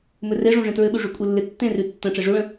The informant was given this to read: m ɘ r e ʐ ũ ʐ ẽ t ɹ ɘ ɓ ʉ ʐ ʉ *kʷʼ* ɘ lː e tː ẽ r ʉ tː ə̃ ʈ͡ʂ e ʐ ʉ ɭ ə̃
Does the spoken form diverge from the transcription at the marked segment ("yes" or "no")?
no